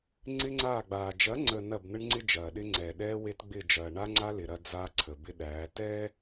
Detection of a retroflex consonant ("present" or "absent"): present